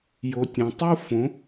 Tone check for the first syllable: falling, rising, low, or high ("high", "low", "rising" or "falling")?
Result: low